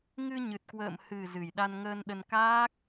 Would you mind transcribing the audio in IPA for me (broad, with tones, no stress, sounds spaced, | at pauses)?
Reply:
ŋ ɨ˧ ɲ ɨ˨˩ t̚ k w ə̰ː˧˨ m h ɨ˨˩ z ɨ˨˩ j ɗ a˧ n ŋ əː˧ n ɗ ə˧ n k aː˦˥ k̚